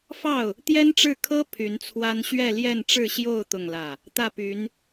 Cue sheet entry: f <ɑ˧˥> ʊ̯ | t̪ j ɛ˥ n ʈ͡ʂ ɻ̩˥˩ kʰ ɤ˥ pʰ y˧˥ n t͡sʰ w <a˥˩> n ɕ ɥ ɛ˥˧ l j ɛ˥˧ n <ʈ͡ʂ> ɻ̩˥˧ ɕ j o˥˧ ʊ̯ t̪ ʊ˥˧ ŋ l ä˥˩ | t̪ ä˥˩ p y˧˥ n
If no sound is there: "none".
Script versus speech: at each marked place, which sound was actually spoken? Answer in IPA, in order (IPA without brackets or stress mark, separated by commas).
ɑ˥˩, a˥, ʈ͡ʂ